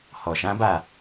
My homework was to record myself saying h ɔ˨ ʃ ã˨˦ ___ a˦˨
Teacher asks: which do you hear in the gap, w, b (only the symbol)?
b